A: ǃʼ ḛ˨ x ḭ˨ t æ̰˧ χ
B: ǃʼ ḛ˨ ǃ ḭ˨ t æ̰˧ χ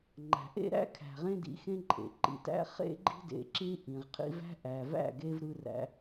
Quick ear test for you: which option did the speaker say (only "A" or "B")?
B